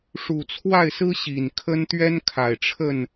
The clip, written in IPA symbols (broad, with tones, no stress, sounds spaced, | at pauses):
ʂ u˨˩ t͡sʰ w a˥˨ ɪ̯ s ɹ̩˦ ɕ i˨˩ n kʰ ə˦ n t̪ ɥ ɛ˦ n kʰ a˨˩ ɪ̯ ʈ͡ʂʰ ə˥˨ n